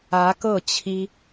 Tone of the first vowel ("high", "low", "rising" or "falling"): rising